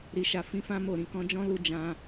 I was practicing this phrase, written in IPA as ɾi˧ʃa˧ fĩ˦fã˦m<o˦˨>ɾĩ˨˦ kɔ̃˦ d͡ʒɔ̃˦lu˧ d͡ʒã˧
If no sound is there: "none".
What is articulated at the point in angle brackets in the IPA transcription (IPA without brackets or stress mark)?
o˦˨